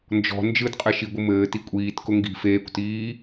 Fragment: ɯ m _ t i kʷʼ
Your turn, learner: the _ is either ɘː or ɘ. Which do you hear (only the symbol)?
ɘː